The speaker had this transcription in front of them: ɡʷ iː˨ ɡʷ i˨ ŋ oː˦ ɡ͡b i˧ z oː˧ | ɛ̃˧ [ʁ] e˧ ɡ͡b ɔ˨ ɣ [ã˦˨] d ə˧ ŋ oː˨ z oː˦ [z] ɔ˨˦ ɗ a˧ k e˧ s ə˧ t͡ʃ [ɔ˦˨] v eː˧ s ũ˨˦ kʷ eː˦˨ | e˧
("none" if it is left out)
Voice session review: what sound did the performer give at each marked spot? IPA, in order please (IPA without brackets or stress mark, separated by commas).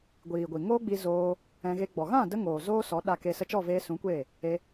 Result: ɣ, ã˦˨, s, ɔ˦˨